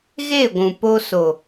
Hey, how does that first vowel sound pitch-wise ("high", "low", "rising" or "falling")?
falling